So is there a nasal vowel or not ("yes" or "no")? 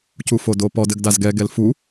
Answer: no